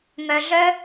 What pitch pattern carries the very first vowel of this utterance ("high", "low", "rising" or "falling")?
low